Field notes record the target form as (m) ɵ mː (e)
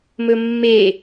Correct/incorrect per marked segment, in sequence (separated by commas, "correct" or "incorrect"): correct, correct